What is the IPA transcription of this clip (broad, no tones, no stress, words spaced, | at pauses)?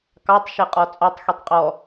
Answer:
kɑtˤ ʃeqʼɔt͡sʼɔtˤ xitˤqʼɔ